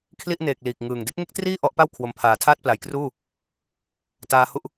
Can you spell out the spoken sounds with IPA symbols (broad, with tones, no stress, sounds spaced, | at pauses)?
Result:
kʰ l i˥˩ ʔ n eː˨˩ k̚ l iː˨˩ k̚ ŋ ɯː˨˩ ŋ d e˥˩ k̚ ŋ e˥˩ k̚ t r iː˥˩ ʔ ɔ˦˥ ʔ p a˥˩ w kʰ w o˩˦ m pʰ aː˩˦ tʰ aː˥˩ t̚ p l a˩˦ j k r uː˥˩ | t aː˦˥ h u˥˩ ʔ